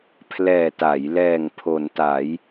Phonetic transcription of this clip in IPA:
pʰlɛː˨˩ta˩˦jlɛː˨˩ŋ pʰo˩˦nta˩˦j

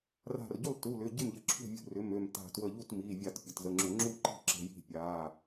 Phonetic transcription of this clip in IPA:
ra̤˧˩rɟu˥˩lˠ tu˩˧˩lʏ˩˧˩ɟɪ˥˩mʎə˧˩˧ ǁʰṳ˥˩vʲṳ˧˩rʏ˩˧˩m ø˧˩mta̤˧˩twə˧˩ ʎu˥˩tmi˩˧˩vʲa˧˩˧t pʲə˩˧˩tzə˩˧˩ŋ͡ǁʏ˧˩˧ ŋ͡ǁu˥˩ǃi̤˥˩ǁə̤˩˧˩ ji̤˥˩pʲa˩˧˩

